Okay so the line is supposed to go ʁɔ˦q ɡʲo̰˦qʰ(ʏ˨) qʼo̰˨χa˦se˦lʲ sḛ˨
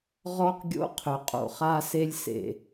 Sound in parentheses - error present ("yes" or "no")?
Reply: no